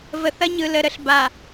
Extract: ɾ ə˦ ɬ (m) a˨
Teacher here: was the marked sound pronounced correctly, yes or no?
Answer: no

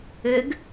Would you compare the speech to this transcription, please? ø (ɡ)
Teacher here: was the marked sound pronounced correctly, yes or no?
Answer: yes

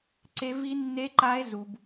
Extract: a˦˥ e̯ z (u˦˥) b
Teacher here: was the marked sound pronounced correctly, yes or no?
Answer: yes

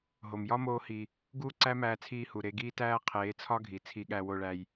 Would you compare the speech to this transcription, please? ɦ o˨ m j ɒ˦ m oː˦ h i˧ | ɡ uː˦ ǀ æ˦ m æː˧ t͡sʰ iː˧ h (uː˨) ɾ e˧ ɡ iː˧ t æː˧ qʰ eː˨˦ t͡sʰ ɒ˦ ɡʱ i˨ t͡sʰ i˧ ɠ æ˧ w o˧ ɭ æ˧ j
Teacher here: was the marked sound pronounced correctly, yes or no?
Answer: no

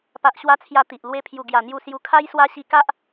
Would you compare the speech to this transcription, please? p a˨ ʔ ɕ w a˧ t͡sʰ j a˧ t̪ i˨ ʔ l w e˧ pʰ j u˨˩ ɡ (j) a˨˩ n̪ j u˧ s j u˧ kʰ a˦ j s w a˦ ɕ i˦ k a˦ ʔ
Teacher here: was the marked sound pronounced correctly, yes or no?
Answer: yes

